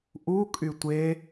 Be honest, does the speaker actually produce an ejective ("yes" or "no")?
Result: yes